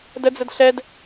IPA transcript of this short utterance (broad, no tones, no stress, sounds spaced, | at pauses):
d ə d͡z ə d ɬ ɛ d